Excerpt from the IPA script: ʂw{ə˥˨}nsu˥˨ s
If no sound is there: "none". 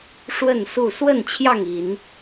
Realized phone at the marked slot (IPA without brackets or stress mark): ə˥˨